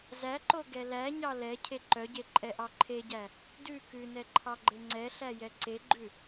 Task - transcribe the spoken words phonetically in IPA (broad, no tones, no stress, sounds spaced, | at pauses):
z æ ǃ o ɡ ɛ l æ ɲ ɑ l ɛ cʰ e ǃ œ ɟ e ǃʼ ɛ ʔ ɑ ǃʰ e ɟ æ | d ʉ k ʉ n ɛ ǃʰ ɑ ɡ͡ǃ e ŋ͡ǀ ɛ ɬ æ j ɛ ǀ e ɡ͡ǃ ʉ